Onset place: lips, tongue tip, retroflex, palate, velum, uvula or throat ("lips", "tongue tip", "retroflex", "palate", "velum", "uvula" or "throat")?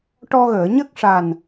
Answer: retroflex